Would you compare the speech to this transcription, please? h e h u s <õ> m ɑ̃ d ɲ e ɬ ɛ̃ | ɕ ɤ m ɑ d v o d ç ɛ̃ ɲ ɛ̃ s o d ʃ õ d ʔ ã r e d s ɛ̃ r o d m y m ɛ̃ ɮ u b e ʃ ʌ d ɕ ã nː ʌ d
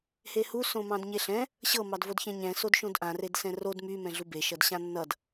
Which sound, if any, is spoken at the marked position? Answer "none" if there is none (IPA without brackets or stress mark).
õ